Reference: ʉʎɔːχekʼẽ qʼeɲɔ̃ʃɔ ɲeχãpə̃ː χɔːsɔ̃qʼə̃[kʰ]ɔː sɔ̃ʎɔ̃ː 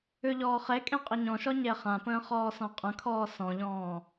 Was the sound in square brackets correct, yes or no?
yes